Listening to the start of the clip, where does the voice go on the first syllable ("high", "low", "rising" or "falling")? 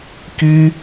high